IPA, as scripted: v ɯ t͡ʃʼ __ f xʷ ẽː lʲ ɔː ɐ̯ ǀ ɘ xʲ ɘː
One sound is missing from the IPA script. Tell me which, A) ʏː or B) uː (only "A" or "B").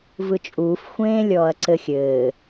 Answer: B